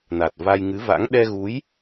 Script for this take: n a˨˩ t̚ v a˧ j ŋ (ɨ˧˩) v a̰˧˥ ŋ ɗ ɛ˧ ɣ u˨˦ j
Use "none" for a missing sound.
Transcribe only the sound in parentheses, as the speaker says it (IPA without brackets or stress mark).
ɨ˨˦